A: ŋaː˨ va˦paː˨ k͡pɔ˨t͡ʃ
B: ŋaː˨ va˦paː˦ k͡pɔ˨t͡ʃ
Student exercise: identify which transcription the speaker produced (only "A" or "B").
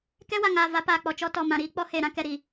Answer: A